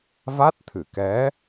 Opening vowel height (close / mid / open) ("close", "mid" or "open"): open